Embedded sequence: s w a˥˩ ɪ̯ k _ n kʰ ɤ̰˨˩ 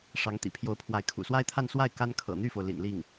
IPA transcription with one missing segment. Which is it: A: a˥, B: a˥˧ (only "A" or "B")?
A